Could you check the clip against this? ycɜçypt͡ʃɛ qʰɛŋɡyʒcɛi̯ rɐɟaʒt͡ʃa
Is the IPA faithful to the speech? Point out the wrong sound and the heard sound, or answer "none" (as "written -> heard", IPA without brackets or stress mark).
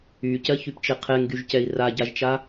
ɐ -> a